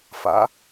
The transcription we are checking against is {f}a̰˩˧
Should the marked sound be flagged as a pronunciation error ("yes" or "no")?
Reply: no